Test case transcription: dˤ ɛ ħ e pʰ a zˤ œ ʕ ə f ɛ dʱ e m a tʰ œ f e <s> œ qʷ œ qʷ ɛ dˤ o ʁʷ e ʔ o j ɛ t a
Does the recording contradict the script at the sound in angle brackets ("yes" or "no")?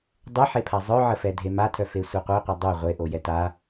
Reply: yes